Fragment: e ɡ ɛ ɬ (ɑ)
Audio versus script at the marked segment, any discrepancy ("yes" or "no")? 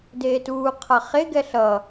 yes